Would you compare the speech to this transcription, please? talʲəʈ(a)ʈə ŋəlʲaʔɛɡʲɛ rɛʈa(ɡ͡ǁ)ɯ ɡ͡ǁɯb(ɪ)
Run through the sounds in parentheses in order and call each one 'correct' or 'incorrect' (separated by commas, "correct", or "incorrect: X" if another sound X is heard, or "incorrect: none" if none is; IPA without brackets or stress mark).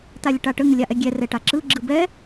correct, incorrect: ǁ, incorrect: ɛ